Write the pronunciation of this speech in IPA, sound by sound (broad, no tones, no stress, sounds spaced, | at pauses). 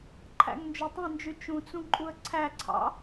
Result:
ǃʰ æ̰ ŋ n d͡ʒ o tˤ ẽ n d͡ʒ y t͡ʃ ũ t͡s ũ ǃʼ u ə̯ ǀʰ æ ǀʰ ɑ̰